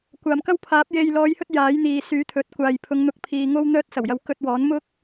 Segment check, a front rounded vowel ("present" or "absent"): present